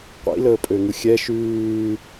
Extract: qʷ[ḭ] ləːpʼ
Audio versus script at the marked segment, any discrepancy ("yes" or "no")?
no